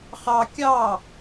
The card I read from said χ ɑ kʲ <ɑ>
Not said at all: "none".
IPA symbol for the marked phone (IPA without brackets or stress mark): ɑ